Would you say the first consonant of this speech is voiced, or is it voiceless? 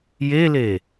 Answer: voiced